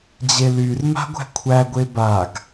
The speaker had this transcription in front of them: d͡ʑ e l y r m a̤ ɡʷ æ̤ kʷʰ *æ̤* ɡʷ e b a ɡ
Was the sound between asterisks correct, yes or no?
no